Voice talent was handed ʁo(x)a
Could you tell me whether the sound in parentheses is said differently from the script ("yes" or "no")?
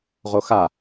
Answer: no